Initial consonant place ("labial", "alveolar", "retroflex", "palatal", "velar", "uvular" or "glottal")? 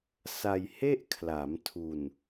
alveolar